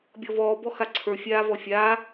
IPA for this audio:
bʲ ɔ v ɔː b ɔ x a ǀʰ ə˞ fʲ aː v ɔ fʲ aː

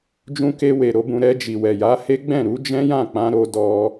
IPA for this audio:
d͡ʒ ũ˧ k e˧ w e˨ ɾ o˨˦ b ũ˧ ɾ ɛ˧ d͡ʒ i˨ w ɛ˨ j a˨˦ h e˦ ɡ͡b ɛ̃˦˨ ɾ u˨˦ d͡ʒ ɛ̃˦ j ã˦˨ k͡p ã˧ ɾ o˧ d ɔ˧

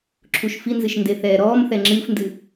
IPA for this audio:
ǁʰ u ʃ f i n z ɨ ʃ n d e θ ɛː ɾ ɔː m θ ɛ ŋ͡ǁ ɨː f n d ɨ

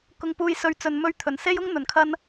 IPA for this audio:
k ʊ˧ ŋ p uː˧ j s ɵ˧ ɥ t͡s ɵ˨ n m ɵ˧ ɥ t̪ʰ ɵ˨˩ n s e˥ j ʊ˥ ŋ n̪ ɵ˨˩ n kʰ ɐ˧ n

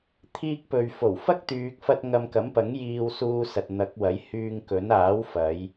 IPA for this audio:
t̪ʰ iː˧ k̚ p ɵ˨ ɥ f o˨˩ w f ɐ˥ k̚ t̪ yː˨ k̚ f ɐ˧ t̚ ŋ ɐ˧ m k ɐ˨˥ m p ɐ˨˥ ŋ j iː˧ w s uː˧ s ɐ˨ t̚ n̪ ɐ˨˥ k̚ w ɐ˨˥ j h yː˧ ŋ k ɵ˨˥ n aː˨˥ w f ɐ˨˧ j

